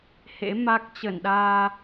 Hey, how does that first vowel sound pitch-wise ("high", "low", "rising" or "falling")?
rising